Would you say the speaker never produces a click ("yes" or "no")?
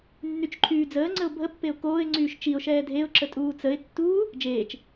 no